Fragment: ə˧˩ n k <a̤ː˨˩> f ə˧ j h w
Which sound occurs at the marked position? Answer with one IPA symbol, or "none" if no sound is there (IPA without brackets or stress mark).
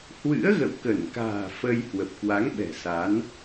a̤ː˨˩